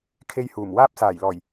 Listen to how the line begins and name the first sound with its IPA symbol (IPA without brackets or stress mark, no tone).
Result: kʰ